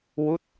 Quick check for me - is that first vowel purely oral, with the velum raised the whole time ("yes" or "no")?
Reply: yes